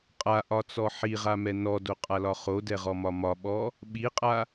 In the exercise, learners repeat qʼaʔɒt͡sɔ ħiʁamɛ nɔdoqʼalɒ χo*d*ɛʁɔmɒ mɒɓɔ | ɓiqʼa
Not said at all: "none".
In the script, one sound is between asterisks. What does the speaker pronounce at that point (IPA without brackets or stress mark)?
d